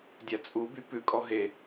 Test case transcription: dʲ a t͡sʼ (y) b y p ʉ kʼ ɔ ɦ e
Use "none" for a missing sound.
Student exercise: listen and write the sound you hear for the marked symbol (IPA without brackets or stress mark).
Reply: u